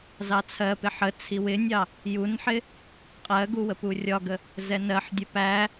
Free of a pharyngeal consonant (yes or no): no